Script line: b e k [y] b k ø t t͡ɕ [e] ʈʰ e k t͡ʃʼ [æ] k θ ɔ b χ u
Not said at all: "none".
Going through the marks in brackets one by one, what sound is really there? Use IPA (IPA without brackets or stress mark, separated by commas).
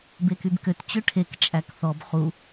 y, ø, æ